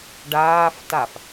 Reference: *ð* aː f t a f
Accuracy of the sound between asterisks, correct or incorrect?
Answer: incorrect